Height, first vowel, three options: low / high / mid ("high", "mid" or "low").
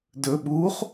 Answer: mid